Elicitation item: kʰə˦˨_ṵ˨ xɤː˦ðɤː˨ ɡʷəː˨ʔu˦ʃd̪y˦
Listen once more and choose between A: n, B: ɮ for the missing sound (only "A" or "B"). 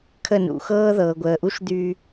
A